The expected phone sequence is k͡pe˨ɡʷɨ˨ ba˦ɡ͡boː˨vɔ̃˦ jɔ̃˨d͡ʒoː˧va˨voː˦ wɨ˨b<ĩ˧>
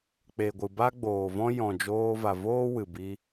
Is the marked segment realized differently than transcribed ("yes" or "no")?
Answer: yes